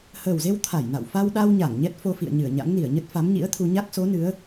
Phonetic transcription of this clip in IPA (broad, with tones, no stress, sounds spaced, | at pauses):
h əː˨˩ w z e˧ w t̪ʰ a˧˩ j n a̰˧˨ w f a˧ w ɗ a˧ w ɲ a˧˩ ŋ ɲ ɛ˦˥ t̚ f o˧ f ḭ˧˨ ə̯ ɲ ɨ˧˩ ə̯ ɲ a̰˧˥ ŋ n i˧˩ ə̯ ɲ ə˦˥ t̚ f a˨˦ m ɲ ḭ˧˥ ə̯ t̪ʰ u˧ ɲ a˦˥ k̚ s o˨˦ n ɨ˨˦ ə̯